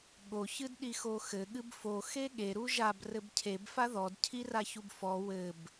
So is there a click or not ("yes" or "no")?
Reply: no